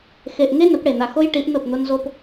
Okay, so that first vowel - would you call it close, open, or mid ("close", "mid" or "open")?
mid